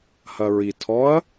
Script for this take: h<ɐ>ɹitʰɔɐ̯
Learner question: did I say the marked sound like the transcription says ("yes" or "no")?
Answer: yes